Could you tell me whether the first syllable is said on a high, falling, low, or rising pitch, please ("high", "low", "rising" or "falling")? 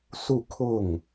falling